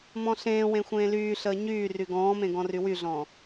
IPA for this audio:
m ɔ̃ ɬ ẽː w ẽ xʷ ẽː l yː ɬ əː ɲ yː r y ɡ ɔ̃ː m ẽ ɡ ɔ̃ r y w y ɮ ɔ̃ː

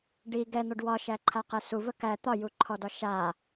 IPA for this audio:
ɖ i ɡ ɛ n̪ ɔ ɖ w ɒ ʃ æ ǃʰ a q ɛ s u v ə k æ t̪ ɒ j u ǃʰ ɔ d ɒ ʃ a

